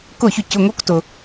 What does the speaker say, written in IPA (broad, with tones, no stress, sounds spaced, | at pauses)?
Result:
k ʊ˥˩ ç ʏ˥˩ c ʊ˩˧˩ ŋ o˧˥ k t ʊ˩